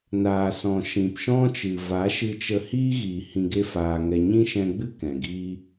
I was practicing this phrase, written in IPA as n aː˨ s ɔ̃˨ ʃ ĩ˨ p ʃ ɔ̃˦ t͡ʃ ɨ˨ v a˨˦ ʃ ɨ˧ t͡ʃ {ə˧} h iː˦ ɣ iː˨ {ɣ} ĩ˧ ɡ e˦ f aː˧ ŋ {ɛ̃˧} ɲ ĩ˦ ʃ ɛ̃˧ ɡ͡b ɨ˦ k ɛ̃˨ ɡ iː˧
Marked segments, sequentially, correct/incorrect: correct, incorrect, incorrect

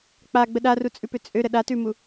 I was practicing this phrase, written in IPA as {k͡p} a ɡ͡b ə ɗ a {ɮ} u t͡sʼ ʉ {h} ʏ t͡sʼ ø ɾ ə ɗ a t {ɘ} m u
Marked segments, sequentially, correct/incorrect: correct, incorrect, incorrect, incorrect

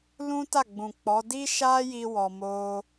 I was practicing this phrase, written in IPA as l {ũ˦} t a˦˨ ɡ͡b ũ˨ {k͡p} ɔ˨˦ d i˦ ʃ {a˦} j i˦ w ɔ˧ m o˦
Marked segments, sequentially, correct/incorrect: correct, correct, correct

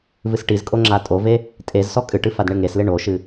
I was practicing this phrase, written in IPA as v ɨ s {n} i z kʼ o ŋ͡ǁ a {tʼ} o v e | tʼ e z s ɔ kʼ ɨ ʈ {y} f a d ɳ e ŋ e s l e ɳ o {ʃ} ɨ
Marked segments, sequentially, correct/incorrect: incorrect, correct, incorrect, correct

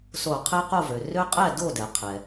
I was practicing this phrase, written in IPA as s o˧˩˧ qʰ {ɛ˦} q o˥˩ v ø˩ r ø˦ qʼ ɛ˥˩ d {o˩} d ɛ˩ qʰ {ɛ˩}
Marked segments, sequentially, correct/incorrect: correct, incorrect, correct

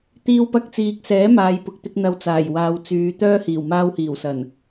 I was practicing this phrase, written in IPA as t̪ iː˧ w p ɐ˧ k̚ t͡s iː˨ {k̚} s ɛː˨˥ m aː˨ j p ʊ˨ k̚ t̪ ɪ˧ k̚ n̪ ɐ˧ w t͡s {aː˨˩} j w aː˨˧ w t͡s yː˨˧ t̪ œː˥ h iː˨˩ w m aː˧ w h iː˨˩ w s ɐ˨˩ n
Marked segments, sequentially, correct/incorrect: correct, correct

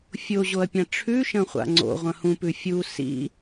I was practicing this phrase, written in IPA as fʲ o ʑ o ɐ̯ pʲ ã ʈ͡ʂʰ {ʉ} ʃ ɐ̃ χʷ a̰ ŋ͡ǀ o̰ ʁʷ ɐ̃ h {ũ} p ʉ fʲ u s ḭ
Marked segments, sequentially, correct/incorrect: correct, correct

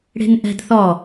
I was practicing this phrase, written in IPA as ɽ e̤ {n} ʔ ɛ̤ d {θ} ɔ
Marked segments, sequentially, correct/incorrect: correct, correct

